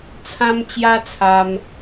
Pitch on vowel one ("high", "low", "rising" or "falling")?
high